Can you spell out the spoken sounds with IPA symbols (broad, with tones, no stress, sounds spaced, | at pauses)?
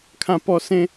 kʰ ã˧ p ɔ˧ s ẽ˧